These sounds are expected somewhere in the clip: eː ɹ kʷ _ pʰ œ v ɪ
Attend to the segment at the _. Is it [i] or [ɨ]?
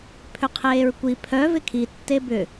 i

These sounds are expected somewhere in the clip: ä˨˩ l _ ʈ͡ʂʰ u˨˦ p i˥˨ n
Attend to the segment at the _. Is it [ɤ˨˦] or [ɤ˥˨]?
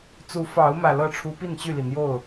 ɤ˥˨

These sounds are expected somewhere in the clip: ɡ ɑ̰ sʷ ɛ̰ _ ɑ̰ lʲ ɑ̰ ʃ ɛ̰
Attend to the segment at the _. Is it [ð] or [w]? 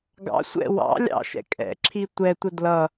w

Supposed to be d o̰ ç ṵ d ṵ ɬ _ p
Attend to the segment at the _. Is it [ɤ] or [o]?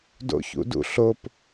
o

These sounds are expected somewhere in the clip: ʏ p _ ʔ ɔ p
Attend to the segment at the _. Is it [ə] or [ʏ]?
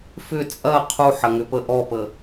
ə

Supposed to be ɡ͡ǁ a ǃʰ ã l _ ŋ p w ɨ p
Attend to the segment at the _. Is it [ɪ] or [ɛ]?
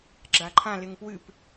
ɪ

